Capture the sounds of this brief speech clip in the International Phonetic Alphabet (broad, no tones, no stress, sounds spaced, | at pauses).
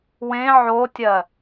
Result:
w ẽ ʕ o tʲ ɜ